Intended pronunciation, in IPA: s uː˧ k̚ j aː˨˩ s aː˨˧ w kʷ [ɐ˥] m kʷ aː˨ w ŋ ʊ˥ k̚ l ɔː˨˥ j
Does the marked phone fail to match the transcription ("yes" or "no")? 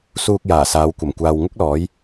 yes